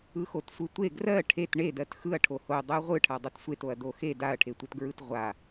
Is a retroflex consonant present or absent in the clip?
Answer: present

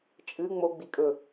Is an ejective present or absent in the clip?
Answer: present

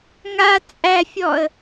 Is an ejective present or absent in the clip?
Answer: present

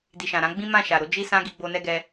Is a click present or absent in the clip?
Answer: absent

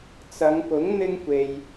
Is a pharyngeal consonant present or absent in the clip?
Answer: absent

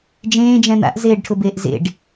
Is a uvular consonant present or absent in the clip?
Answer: absent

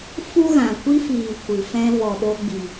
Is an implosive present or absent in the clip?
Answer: present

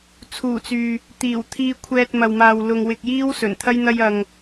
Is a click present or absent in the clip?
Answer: absent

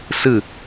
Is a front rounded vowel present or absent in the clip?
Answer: absent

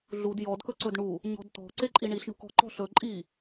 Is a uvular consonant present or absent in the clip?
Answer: absent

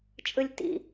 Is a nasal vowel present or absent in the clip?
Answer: absent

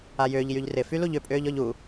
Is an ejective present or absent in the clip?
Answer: present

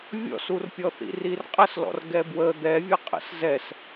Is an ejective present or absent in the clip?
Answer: present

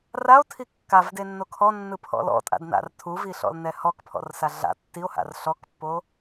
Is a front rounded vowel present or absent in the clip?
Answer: absent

